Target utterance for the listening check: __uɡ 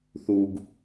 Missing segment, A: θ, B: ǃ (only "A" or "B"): A